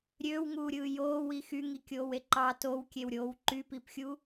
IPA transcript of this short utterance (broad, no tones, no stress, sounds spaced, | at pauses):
ɾʲ øː w ŋ uː ɾʲ ɯː j oː w i x y ŋ i kʲ oː w e ǃ ɑ t o w kʲ e w ɾʲ oː w ǃ y p i p xʲ u